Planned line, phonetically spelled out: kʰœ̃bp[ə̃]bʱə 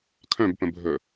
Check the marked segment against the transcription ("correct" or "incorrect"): correct